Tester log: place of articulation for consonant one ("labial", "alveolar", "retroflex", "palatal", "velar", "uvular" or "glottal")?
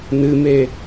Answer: alveolar